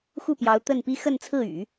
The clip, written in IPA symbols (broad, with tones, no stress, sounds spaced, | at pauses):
x u˥˩ p j ɑ˧˥ ʊ̯ t̪ ə˥˩ n p i˥ x ə˥˧ n t͡sʰ ɹ̩˥˩ y̰˨˩˦